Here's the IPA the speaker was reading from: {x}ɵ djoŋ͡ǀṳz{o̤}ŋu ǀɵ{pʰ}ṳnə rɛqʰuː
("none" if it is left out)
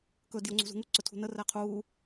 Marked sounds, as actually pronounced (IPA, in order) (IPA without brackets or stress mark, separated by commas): k, ṳ, tʰ